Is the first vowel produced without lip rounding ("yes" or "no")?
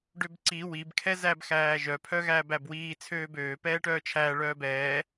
no